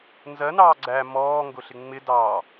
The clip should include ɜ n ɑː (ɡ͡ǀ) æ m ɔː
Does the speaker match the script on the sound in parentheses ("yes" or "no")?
yes